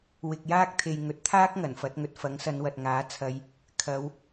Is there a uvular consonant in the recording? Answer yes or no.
no